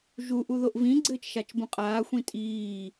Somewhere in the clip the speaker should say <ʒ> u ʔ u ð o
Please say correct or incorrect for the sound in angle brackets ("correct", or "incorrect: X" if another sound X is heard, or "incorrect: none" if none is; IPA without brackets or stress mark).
correct